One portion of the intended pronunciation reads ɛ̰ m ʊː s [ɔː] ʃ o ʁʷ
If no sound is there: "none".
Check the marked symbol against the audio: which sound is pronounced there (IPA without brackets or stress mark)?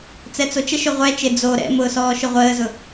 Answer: ɔː